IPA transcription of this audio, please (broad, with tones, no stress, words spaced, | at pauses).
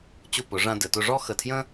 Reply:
t͡ɕʊ˧˩pʊ˩˧ ʐã˧dɘ˩˧tʊ˧ ʐɔ˥˧xə˧˩tʰjə̃˥